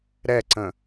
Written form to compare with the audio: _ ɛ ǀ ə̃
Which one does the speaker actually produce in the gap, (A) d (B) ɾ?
B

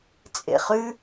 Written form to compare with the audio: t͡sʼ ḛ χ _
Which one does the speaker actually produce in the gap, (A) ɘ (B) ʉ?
B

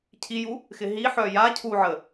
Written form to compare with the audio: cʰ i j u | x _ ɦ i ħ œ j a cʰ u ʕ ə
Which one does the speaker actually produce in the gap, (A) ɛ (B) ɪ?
B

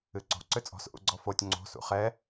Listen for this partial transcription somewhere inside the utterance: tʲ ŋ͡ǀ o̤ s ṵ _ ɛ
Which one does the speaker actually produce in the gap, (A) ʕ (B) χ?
B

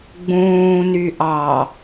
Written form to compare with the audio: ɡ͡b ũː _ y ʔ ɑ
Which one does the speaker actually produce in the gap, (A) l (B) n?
B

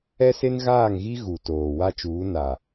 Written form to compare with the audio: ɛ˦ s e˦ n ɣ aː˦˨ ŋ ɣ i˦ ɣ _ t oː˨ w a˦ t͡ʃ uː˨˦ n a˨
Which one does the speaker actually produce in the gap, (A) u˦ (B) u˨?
B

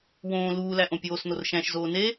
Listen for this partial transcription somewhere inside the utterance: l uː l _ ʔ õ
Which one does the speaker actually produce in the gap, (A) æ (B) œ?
A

